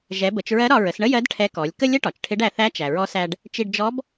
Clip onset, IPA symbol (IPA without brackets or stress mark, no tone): ʒ